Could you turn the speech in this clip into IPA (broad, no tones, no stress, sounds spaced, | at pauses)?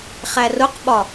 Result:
χ æ r ʊ q ɓ ɒ